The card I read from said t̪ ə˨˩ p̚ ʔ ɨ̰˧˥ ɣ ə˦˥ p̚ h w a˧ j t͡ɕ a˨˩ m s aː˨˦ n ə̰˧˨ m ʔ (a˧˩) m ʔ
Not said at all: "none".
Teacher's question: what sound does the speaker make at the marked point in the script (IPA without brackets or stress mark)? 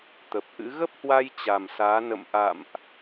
a̰˧˨